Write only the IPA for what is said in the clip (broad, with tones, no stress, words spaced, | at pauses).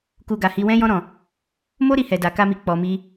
ku˧ɡa˨hi˧ wɛ̃˧jɔ̃˧ɾɔ̃˨ | mo˦ɾi˧hɛ˨ da˨ka˧mi˨ k͡pɔ˨ mi˧